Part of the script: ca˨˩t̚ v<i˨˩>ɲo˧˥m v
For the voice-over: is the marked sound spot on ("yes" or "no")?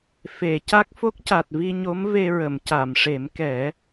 no